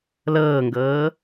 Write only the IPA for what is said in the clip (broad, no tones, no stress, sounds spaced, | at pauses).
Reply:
l ɤː ŋ ɡ ɤː